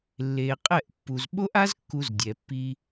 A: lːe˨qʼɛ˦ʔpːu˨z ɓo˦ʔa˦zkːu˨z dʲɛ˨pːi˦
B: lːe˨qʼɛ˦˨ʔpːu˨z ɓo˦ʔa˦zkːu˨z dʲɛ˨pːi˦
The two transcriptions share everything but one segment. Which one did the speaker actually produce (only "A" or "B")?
B